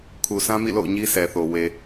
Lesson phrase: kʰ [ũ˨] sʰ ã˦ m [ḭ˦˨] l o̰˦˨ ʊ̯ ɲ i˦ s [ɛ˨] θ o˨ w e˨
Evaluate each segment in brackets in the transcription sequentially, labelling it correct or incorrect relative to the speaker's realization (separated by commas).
incorrect, correct, correct